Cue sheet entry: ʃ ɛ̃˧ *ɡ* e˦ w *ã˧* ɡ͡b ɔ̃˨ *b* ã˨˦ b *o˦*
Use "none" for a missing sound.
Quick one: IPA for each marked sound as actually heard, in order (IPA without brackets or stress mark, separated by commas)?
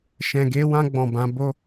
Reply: ɡ, ã˧, b, o˦